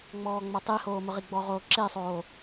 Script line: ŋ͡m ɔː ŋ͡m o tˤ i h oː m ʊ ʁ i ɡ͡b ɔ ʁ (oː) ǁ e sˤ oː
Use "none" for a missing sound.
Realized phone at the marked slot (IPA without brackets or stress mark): oː